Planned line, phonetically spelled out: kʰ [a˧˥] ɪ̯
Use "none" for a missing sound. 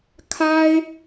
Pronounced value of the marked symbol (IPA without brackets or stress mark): a˥